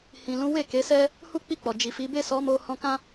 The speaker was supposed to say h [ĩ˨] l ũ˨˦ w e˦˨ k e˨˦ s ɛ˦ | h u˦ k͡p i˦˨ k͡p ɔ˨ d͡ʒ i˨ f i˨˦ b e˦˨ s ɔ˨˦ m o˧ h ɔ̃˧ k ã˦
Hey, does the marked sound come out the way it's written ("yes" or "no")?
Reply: yes